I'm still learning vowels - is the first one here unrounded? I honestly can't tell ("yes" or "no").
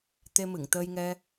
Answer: yes